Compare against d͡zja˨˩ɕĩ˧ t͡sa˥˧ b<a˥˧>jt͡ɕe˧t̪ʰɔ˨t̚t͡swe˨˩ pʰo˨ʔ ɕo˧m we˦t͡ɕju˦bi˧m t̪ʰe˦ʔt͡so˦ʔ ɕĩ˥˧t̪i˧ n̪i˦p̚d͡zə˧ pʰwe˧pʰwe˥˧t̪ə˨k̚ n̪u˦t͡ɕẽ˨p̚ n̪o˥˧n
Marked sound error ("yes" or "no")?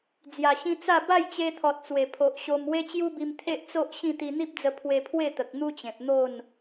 no